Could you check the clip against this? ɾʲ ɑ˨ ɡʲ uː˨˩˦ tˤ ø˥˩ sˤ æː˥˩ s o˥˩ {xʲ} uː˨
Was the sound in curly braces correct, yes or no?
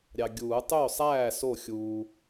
yes